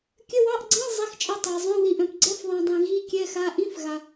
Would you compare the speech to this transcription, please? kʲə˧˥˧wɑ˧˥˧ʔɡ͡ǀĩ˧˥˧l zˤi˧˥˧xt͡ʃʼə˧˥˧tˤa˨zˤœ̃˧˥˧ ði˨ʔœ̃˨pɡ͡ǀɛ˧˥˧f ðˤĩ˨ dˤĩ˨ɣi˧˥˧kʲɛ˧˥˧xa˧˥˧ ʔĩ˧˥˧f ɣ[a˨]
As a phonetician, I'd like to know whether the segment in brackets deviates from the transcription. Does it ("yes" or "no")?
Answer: no